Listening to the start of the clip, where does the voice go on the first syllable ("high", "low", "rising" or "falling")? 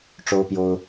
high